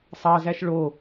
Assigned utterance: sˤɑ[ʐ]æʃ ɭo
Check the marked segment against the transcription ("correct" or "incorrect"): incorrect